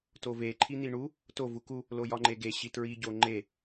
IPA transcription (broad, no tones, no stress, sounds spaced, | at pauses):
t o v e ǃʰ i n̪ i ɳ u | t o v u k u | l o j ɒ ŋ͡ǃ e ɡ e ɕ i t ɹ i ɟ o ŋ͡ǃ e